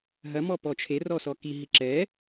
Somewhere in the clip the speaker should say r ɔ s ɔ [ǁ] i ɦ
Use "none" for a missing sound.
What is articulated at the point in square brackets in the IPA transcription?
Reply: k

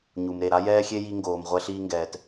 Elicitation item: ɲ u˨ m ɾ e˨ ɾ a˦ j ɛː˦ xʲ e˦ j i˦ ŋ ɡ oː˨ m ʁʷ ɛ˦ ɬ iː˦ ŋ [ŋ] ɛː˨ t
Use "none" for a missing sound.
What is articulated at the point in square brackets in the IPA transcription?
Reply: ɡ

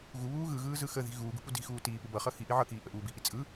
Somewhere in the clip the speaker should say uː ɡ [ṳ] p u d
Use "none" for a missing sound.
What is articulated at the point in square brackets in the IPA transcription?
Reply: ṳ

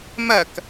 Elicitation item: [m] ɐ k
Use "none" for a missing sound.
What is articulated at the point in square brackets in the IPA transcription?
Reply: m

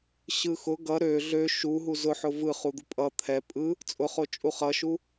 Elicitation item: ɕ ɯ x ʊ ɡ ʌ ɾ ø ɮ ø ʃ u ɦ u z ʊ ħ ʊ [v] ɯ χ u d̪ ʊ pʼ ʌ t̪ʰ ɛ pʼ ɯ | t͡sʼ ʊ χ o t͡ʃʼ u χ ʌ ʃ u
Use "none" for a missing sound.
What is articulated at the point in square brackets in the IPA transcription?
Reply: v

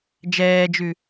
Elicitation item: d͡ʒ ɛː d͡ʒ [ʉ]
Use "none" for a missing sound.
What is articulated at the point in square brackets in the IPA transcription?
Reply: ʉ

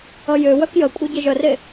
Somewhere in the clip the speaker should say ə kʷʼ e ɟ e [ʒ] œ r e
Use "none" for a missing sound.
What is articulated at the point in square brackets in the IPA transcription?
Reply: ʒ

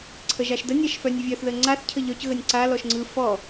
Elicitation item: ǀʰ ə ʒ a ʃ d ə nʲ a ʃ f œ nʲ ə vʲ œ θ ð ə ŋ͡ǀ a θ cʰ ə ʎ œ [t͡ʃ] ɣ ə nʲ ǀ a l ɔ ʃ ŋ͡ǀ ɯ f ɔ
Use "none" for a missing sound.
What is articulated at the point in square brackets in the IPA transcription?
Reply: c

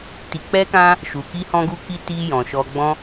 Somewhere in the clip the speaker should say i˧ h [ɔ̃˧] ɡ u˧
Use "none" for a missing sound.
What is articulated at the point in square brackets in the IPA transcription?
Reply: ɔ̃˧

